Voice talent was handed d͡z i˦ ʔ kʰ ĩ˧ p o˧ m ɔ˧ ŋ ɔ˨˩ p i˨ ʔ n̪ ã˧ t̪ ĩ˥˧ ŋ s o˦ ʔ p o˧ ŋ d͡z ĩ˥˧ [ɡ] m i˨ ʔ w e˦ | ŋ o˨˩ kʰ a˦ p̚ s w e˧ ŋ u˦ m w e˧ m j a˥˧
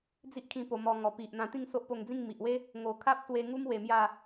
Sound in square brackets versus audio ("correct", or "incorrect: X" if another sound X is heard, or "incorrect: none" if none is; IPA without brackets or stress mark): incorrect: ŋ